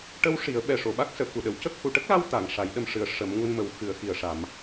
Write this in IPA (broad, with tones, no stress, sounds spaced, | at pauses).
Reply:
ʈ ə˧ w ʂ i˨˩˦ ə̯ ɓ ɛ˨˩ ʂ o˨˩˨ ɓ a˦˥ k̚ s əː˨˩˨ k u˨˩ ɗ ə˨˩˨ w c ə˦˥ k̚ h u˨˩˨ ʈ ə˦˥ k̚ l a˧ w t̪ a˨˩˨ ŋ ʂ a˨˩˦ j ɗ ə˧ m ʂ ɨ˨˩ ə̯ ʂ ə˨˩˦ m ŋ u˧ n m ə˨˩˦ w x ɨ˨˩˦ ə̯ x i˨˩ ə̯ ʂ a˨˩˦ m